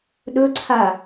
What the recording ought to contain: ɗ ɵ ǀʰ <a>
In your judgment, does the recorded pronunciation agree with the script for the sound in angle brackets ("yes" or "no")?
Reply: yes